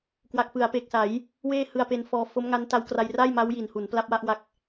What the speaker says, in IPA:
k w a˨˩ k̚ f ɯ˩˦ a̯ p e˨˩ k̚ s a˩˦ j | w eː˥˩ h ɯ˧ a̯ p e˧ n f ɔː˧ f o˦˥ m ŋ a˦˥ n t a˦˥ w k r a˧ j r a˥˩ j m a˦˥ w j i˨˩ n h u˩˦ n p l a˦˥ p̚ w a˥˩ ʔ w a˦˥ k̚

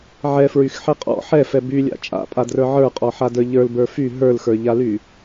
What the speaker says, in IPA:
ʕ ɛ f ɹ y x ħ ɛ qʼ ɔ̰ ħ ɛ f ɛ b y lʲ a̰ t͡ʃʼ a̰ pʼ a d r ə˞ ʕ ə˞ qʼ ɔ ħ a d ə˞ ʎ ə˞ l b ə˞ f y ɦ ə˞ l x ə˞ ʎ a l y

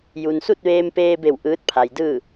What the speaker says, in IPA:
j u˩ n s u˥˨ t̚ ʋ eː˧ m p eː˧ b e˧˩ w ʔ ɯː˧˥ t̚ pʰ a˩ j d ɯː˥˨

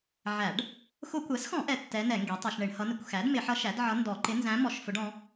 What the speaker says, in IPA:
ʕ æ˧˩˧ ɖ | x ʊ˧˩˧ kʷ ɛ˩˥ s x ɔ̃˧˩˧ ʔ ɛ˧˥ tː ɛ˧˥ n ɛ˧˩˧ ŋ ɡ i˩˥ tˤ ʌ˧˩˧ ʃ ɳ ɪ˧˩˧ ɳ h ʌ˧˥ n ɪ˩˥ kʷ x æ˩˥ d m ɪ˧˩˧ ħ ʌ˧˥ ʃ æ˩˥ d ʕ ʌ˧˥ n d ɔ˧˩˧ ǃ ɪ˧˥ n z æ̃˧˥ m ɔ˧˩˧ ʃ f ʊ˧˥ ɖ ɔ̃˧˥

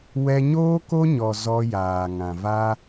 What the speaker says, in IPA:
w ɛ˧ ɲ oː˦ k o˦ ɲ ɔ˨ z ɔ˧ j aː˨ ŋ ã˨ v a˦

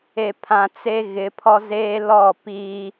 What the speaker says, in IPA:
e˨ pʰ ã˨ t͡s e˦ ɣ ɪ˨˦ pʰ ɔ˦ z eː˦ l ɔ˦˨ p iː˦

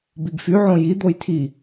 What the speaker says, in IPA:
b i ɡ f y ʕ õ j i d̪ o j tʰ i

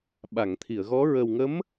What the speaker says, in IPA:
ɓ a˨˩˨ ŋ t̪ʰ i˨˩˨ ə̯ ɣ ɔ˧˥ ɹ ə˨˩ w ŋ ə˧˥ m

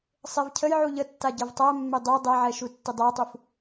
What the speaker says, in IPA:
sˤ e v cʰ ə j ʕ u ʎ ə tː a ɟ ɛ v tˤ æ mː e dˤ e dˤ ɛ ʕ ɛ ʃ u tː ɪ dˤ æ tˤ u f

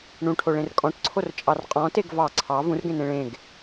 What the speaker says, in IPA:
ɳ ũ ʈʰ o ɭ ẽ r kʼ ɔ̃ ʈ ǀʰ o r t͡ʃʼ ɑ r qʼ ɔ̃ t e ɡ v ɑ ǀʰ ɑ v ũ r ɡ ẽ n ẽ ɭ ẽ ɡ

